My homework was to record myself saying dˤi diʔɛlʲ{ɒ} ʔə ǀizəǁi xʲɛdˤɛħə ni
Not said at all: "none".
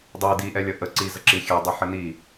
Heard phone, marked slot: ʌ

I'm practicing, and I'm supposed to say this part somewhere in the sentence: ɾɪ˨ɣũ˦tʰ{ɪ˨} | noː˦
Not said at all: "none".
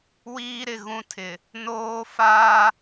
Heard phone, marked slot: ɪ˨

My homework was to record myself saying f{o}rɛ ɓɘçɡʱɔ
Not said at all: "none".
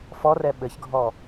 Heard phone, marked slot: ɔ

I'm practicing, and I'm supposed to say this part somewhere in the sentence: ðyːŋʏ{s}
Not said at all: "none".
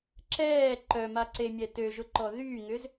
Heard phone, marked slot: z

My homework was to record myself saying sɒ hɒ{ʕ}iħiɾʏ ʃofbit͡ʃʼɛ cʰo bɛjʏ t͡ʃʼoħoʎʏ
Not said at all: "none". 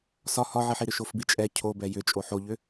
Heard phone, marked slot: ʕ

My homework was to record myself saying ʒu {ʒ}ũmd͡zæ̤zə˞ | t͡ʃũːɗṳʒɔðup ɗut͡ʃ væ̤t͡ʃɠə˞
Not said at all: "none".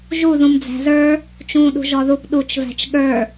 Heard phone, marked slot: ð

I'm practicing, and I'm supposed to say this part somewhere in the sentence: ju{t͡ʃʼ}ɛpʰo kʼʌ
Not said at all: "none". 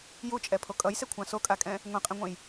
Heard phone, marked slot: t͡ʃʼ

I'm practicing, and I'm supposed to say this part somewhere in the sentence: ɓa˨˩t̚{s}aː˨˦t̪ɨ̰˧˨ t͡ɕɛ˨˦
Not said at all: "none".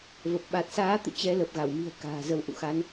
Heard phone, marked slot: s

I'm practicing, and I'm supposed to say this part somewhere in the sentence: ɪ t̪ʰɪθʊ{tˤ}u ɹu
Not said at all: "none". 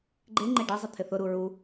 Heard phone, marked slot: ɾ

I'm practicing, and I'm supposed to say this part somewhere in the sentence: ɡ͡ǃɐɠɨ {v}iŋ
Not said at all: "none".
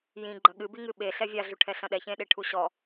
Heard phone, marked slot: b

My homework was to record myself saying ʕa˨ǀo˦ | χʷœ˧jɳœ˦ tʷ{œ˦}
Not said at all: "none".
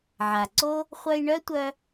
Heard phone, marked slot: œ˦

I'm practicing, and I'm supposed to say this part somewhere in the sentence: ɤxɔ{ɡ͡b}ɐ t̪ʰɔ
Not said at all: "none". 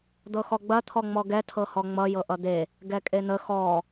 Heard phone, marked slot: ɡ͡b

